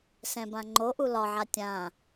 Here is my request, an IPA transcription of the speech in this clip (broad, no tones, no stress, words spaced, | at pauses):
sɛ̃bãŋ͡ǃo ʔulɒʕa tʲã